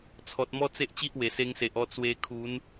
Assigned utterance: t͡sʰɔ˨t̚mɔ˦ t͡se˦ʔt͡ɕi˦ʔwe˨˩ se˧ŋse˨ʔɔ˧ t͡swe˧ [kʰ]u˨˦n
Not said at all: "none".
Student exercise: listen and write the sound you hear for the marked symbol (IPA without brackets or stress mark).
kʰ